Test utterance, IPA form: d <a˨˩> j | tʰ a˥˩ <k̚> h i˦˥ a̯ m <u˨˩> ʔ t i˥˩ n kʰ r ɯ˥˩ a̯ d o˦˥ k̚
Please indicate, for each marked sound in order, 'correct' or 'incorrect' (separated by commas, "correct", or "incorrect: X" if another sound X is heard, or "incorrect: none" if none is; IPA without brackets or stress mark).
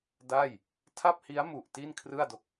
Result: incorrect: a˥˩, incorrect: p̚, correct